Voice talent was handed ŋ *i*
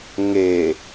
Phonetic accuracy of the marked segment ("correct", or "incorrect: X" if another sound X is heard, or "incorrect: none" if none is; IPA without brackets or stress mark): incorrect: e